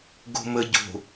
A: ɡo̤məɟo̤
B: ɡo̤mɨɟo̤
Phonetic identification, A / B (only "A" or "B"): A